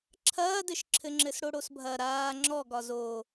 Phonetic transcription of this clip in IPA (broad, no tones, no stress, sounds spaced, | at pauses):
ǁʰ ɐː d ɘ ʃ ǁʰ ɘ ŋ͡ǁ ɘ s ɽ o ɽ o s bʱ ɐ ɾ aː ŋ͡ǁ ɔ ɡ ɒ z o